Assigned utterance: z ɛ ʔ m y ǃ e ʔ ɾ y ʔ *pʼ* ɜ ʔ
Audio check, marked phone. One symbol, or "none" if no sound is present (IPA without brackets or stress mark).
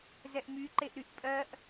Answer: pʼ